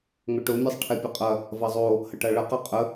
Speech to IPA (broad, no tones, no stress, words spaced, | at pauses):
ŋʊʈʊmʲɛsˤ ʈʰɛpʲɐqʼɐ | vɐzˤo | hɐʈaɭɐqa qʼə